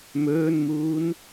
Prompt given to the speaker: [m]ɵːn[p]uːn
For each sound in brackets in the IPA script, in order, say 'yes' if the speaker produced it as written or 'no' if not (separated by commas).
yes, no